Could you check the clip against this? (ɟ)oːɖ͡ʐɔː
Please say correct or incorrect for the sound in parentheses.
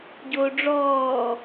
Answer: correct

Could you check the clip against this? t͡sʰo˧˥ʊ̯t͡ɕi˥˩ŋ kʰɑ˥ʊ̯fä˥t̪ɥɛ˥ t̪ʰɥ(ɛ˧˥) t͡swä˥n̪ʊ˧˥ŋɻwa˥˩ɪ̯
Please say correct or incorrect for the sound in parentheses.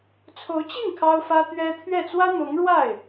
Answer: incorrect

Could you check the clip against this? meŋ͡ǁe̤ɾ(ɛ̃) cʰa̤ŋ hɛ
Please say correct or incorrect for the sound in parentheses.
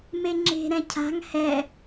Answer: correct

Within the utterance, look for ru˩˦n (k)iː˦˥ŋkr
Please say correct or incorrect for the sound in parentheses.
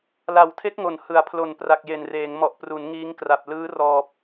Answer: incorrect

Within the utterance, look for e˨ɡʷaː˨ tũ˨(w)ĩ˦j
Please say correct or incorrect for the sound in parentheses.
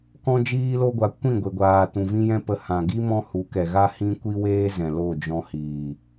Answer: incorrect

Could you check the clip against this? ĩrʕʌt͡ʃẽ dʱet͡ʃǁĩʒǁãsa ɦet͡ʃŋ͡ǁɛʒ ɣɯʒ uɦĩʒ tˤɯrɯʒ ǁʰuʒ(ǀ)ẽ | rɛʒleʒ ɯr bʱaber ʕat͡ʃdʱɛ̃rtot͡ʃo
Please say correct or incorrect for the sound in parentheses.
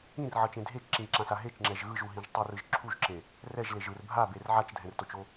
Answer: incorrect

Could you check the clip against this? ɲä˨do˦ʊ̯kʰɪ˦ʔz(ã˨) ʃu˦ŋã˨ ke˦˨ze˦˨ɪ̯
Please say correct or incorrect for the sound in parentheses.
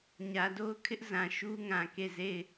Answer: correct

